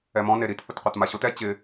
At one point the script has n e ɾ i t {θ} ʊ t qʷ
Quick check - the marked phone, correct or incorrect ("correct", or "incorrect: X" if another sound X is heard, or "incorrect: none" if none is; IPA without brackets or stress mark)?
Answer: correct